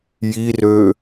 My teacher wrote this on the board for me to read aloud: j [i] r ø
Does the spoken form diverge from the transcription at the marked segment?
no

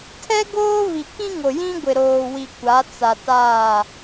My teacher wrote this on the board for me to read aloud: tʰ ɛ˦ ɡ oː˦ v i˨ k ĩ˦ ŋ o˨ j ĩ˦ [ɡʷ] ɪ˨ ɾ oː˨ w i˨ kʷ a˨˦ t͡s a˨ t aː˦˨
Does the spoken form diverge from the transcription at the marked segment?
no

